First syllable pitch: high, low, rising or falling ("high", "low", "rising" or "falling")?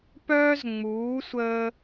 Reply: high